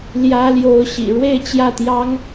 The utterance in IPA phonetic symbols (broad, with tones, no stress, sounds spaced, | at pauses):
l j ä˧˥ l j o˧˥ ʊ̯ ɕ ḭ˨˩ ɻ w e˥˧ ɪ̯ t͡ɕ j ä˥˩ t̪ j ɑ˥ ŋ